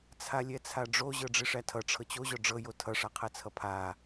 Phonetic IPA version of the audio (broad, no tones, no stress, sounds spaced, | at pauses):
t͡sʰ a lʲ ɛ t͡sʰ a ɖ͡ʐ o ʑ ɤ ɖ͡ʐ i ʂ æ tʰ ʌ ʈ͡ʂʰ ɤ t͡ɕ o ʑ ɔ ɖ͡ʐ ɤ j o tʰ ʌ ʂ a qʰ ɛ t͡sʰ ʌ pʰ a